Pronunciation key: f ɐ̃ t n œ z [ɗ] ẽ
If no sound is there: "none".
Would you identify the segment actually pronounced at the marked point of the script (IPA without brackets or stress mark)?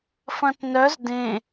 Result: d